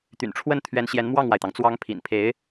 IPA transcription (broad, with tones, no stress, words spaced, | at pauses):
t̪y̰˨˩nʈ͡ʂʰwə˥˩n t̪ʰɥɛ˧˥nɕjɛ˧˥n mwɑ˥˩ŋwa˩ɪ̯t̪ɑ˩ŋ t͡swɑ˧˥ŋ pʰḭ˨˩npʰe˧˥ɪ̯